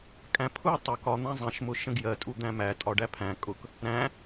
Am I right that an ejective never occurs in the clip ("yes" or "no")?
no